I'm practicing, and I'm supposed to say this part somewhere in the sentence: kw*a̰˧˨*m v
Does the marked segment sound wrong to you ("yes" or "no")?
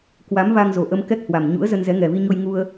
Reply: yes